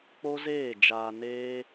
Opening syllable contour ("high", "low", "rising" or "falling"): high